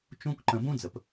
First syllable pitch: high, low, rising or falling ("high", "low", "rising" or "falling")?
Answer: high